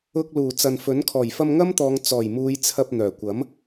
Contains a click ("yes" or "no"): no